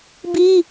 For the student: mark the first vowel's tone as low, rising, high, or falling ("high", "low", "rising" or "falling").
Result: high